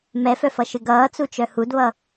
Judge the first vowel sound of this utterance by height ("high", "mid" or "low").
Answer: mid